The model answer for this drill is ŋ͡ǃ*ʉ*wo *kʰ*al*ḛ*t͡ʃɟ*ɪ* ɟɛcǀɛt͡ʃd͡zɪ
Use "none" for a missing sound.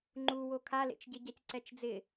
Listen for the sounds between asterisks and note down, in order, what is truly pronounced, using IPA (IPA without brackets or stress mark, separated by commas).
u, kʰ, ḛ, ɪ